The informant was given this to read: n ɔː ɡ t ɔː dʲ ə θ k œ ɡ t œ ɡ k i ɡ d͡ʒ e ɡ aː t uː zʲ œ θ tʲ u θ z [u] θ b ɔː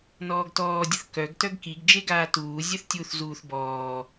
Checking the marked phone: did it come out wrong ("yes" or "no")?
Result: yes